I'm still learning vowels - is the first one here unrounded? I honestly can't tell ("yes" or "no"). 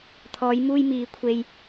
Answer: no